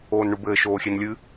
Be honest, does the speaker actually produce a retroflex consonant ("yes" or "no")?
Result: yes